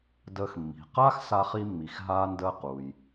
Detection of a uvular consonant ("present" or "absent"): present